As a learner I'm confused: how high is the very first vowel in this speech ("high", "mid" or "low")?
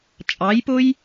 low